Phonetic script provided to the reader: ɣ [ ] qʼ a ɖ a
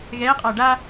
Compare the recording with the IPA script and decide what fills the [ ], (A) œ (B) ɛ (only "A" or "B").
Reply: B